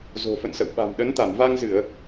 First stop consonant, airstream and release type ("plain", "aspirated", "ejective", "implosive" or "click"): implosive